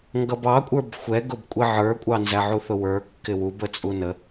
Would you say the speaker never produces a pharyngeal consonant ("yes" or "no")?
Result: no